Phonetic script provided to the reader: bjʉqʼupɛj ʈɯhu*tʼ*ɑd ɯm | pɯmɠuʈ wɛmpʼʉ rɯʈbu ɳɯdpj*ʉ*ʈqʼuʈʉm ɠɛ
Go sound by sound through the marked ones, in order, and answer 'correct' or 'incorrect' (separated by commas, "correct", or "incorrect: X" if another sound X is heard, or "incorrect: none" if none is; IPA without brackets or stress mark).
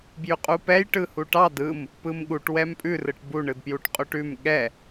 incorrect: ʈ, incorrect: u